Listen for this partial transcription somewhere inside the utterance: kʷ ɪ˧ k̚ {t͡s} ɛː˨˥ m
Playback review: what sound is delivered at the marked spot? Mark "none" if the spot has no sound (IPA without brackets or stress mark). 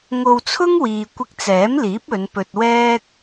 t͡s